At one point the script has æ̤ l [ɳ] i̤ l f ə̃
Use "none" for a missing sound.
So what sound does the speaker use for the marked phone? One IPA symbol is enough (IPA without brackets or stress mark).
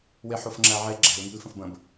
ŋ